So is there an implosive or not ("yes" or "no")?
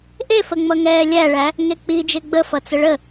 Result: no